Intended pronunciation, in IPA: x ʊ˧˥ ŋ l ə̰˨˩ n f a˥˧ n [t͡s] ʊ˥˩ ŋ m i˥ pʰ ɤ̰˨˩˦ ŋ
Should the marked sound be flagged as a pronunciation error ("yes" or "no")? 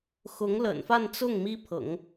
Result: no